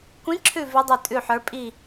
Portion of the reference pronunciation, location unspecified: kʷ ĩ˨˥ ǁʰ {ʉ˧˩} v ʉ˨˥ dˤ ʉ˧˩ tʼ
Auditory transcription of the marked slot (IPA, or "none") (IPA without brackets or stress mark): ʉ˧˩